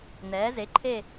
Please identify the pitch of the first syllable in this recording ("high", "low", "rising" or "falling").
rising